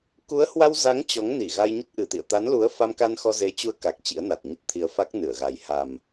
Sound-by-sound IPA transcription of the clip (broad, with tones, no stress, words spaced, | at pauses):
ku˨˦ə̯hwa˧wza˨˦ŋ t͡ɕɔ˨˦ŋni˧˩ɣa˧j ɲə˦˥t̚ʔɨ˨˩t̪ḭ˧˨ə̯ t̪a˨˦nlu˨˦ə̯fa˧mka˧n xɔ˧ze˨˦t͡ɕu˧ə̯ka˨˩k̚ t͡ɕḭ˧˥ə̯na˨˩t̚ɲə˦˥t̚t̪ʰi˧ə̯ fa˦˥k̚nɨ˧˩ə̯ɣa˨˩j ha˨˩m